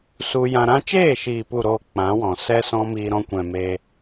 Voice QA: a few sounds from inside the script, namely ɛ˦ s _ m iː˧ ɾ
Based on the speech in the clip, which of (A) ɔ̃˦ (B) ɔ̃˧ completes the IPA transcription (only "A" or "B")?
A